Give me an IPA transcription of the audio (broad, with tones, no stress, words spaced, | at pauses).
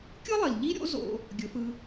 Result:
kʲɯ˦lˠi˨l ʎi˦ɾʲo̰˦ zo̰˦ | ɡʲɵ˨˦fɯ˧